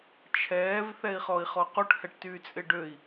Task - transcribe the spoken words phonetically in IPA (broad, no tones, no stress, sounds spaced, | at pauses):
t͡ʃʰ ɛː v θ ɛ i̯ χ ɔ i̯ χ ɔ q u ʈ h ɛ ʈ t yː t͡sʼ ɪ ɖ ø i̯